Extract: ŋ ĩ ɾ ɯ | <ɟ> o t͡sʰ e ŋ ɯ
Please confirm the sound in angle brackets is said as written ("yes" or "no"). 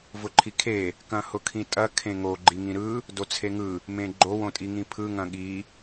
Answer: no